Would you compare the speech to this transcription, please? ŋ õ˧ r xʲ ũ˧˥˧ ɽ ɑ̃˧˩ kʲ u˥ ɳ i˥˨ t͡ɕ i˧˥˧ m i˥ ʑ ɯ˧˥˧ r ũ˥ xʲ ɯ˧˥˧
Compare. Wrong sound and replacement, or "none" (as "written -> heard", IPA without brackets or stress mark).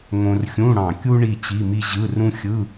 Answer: none